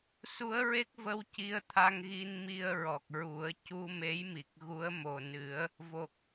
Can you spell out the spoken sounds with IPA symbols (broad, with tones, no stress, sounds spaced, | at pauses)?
s u˧˥ ə̯ ɹ e˦˥ k̚ v ə˧ w c i˧ ə̯ t̪ʰ a˧ ŋ ɣ i˧ n m i˧ ə̯ ɹ ɔ˨˩ k̚ ɹ u˨˩˦ ə̯ c u˧ m e˧˥ j m i˨˩ k̚ ɣ u˧˥ ə̯ m o˨˩ n ɨ˨˩˦ ə̯ | v o˨˩ k̚